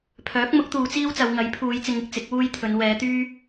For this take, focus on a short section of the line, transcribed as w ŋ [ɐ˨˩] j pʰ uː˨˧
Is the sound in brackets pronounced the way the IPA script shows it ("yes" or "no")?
no